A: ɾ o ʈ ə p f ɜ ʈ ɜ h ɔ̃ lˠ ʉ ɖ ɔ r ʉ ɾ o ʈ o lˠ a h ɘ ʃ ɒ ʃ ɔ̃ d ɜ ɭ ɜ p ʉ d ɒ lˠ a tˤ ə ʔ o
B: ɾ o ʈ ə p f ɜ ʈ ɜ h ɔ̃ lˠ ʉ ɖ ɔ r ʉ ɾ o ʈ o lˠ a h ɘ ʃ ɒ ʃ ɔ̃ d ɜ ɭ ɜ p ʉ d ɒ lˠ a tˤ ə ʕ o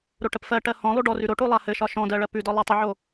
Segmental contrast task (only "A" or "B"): B